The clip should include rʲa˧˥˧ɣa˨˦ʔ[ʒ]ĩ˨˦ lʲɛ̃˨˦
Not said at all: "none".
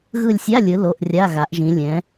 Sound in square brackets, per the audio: ʒ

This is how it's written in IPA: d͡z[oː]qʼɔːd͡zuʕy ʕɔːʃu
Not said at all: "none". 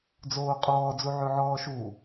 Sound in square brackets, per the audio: oː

